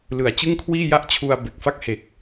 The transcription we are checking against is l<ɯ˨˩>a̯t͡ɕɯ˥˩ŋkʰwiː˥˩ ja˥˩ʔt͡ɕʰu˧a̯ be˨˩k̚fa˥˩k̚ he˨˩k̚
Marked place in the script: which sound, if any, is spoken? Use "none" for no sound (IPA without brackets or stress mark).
ɯ˨˩